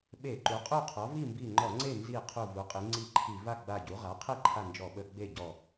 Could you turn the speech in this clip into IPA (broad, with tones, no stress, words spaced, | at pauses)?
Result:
ɓe˧˩˧ǃu˩˥qʼu˥˨qʰɔ˩˥ vi˥˨mbi˧˩ŋ͡ǃɔ˧˩˧ŋ͡ǀe˥˨ nzi˧˩ qʰu˧˩ vu˩˥qʼi˩˥ŋ͡ǀi˥˨ǃʰi˧˩˧ va˥˨ɡ͡ba˧˩ɟu˩˥ ʁa˩˥qʰe˥˨ ǃʰa˥˨nd͡ʒɔ˧˩˧ɓə˧˩˧ ɡ͡be˥˨ɟɔ˧˩